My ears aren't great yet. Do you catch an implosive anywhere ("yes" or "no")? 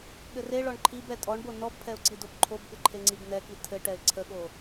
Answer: yes